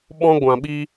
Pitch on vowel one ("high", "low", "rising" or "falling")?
high